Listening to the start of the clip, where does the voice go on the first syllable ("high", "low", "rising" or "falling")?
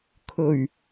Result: low